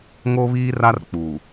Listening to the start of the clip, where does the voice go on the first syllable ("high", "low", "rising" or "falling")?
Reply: high